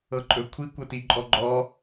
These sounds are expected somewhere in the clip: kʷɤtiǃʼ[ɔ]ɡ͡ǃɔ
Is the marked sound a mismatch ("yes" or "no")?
no